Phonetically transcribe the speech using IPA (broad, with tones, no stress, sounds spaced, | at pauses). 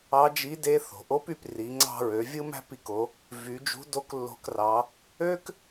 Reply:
ɑ˧˥ d͡ʒ i˧˥ d e˧˥ θ o̤˩ ʔ o˧˥ p y˩˧ p r i˩˧ ŋ͡ǀ ɑ̤˧ ɹ ø˩˧ vʲ ɯ˥ m æ̤˥ p i˧ k o˩˧ | v y˩˧ d͡ʒ ṳ˧˥ d o˧˥ k lː o̤˧ k r ɑ˩˧ | ø˥ k